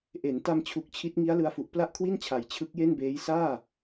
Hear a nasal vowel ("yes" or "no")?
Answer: no